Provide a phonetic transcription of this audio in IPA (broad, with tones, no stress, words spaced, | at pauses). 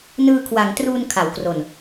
nɯː˧kʰwa˩˦ŋtruː˧n kʰa˩˦wkro˨˩n